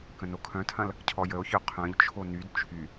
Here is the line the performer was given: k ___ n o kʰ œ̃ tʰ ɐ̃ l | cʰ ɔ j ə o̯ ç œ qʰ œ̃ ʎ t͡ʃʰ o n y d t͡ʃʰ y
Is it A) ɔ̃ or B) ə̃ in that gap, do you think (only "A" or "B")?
B